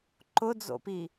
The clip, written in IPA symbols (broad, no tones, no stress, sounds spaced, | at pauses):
ǃ ʊ d͡z o̰ p i